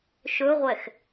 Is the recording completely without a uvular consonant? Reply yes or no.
no